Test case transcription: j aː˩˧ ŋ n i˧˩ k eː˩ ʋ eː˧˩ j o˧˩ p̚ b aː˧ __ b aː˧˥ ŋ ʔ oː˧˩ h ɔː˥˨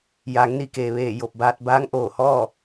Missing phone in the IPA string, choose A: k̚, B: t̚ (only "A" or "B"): B